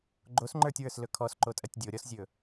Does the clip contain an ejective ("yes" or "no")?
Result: yes